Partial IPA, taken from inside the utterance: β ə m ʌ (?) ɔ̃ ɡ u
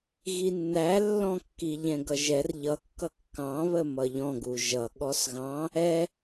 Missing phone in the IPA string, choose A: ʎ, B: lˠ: A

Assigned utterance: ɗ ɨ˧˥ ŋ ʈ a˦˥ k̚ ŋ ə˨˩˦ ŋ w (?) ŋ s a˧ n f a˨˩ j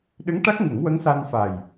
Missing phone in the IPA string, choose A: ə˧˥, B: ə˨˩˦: A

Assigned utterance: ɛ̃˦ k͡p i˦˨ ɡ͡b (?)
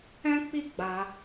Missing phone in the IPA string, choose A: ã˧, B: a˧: B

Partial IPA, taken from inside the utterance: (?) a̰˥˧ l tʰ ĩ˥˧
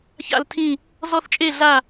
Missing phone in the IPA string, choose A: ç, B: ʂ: A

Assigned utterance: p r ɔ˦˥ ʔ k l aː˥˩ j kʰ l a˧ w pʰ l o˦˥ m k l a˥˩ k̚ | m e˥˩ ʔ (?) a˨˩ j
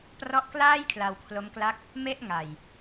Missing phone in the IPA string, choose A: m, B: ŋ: B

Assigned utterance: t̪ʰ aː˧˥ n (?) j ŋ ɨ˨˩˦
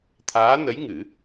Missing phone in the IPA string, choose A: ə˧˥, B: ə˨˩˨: A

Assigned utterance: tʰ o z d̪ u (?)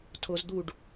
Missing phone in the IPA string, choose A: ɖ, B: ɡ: A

